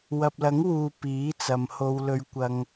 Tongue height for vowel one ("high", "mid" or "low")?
low